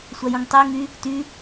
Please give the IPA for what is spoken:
sʷ a j ũ ŋ tˤ ɛ ŋ y | t y

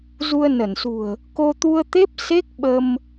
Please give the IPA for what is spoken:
z u˧ ə̯ n ə˧˩ n s ṳ˨˩ ə̯ | k o˧ t̪ u˧ ə̯ t̪ e˦˥ p̚ s e˦˥ k̚ ɓ ə˧ m

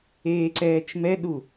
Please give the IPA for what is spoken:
eː ǀ ɛː t͡ʃ m ɛ ɗ u

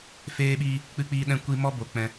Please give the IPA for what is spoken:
f eː˧ ɓ iː˧ | k͡p ɨ˧ k͡p iː˧ ɗ ɛ̃˧ kʷ i˧ m ɔ˦ b o˨ k͡p ɛ̃˧

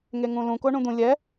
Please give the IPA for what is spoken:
ŋ e ŋ ũ l ũ k o ɳ ũ d̪ ũ lʲ ɛ

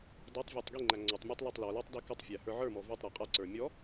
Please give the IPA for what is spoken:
d ɔ tˤ vʲ ə˞ tˤ ɡ i ŋ͡ǃ æ ŋ͡ǀ ɔ tˤ mʲ æ tˤ l a tˤ l ɔ l ə˞ tˤ d i k ə tˤ fʲ æ h ə˞ ʕ ə˞ m ɔ v ɔ tˤ ɾ æ qʼ a ǀ ə˞ mʲ ɔ

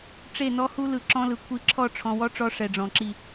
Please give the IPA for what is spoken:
ʈ͡ʂ e˦˨ n ɔ˦ h u˦ l ɯ˨ ǁ ɔ̃˦ l ɯ˨ kʷʰ i˦ ǁʰ ɔ˦˨ ʈ͡ʂʰ ɔ̃˨ w ɔ˦ ʈ͡ʂ ɔ˦ ʂ ɛ˨ ɖ͡ʐ ɔ̃˨ ǁ i˦˨

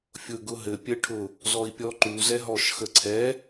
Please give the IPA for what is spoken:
fʲ ʊ ɡ ʊ ɦ ɘ pʲ ɘ ʈʰ ʊ | z ɔ i̯ pʲ ɔ ǃ u z ɛ ɦ ɔ ʃ x ə ǀʰ ɛ

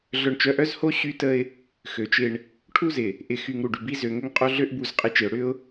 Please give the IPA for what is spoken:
ɮ œ˨ ɳ t͡ʃ œ˨ ʔ œ˦ z h o˦ ɕ y˦ t ə˦ ɪ̯ | x ø˨ t͡ʃ ɪ˦ ɳ | ʈʰ u˦ z ɪ˨ | ʔ ɪ˨ x y˨ ŋ ɾ u˨ ɖ y˨ b i˦ z ø˨ ŋ ʏ˦ ŋ qʼ o˦ ɮ ø˦ ʔ b u˦˨ z qʼ ɪ˦ t͡ʃ ɪ˨ ʊ̯ ɽ ʏ˦ ʊ̯

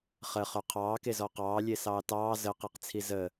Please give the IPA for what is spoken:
χ ə χ œ qʰ ɑː k e z ɔ q ɑː lʲ e s ɑː t ɑː z ə q e q t͡sʰ i z ə

